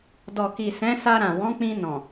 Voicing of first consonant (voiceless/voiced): voiced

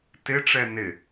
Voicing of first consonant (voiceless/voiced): voiceless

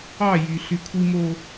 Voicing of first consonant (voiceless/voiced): voiced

